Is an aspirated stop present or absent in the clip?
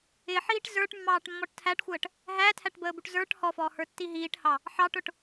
present